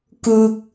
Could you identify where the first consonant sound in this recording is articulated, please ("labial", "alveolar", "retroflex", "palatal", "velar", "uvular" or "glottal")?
velar